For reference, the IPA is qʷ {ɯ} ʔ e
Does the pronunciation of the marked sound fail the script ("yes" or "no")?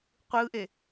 no